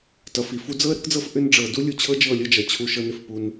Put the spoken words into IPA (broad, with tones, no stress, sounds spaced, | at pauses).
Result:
t ʌ˨ f i˨ f u˦ d͡z ɤ˦ ə̯ ɾ ə˦ k d͡z ɤ˦ f ʔ ʏ˦ n ɖ͡ʐ ɤ˨ d u˦ lʲ u˨ t͡ɕʰ ɤ˦ d͡ʒ ɤ˦˨ lʲ ɤ˦ d͡ʒ ʌ˨ t͡ɕʰ u˦ ʃ ɤ˦ n ʏ˦ f p u˦ n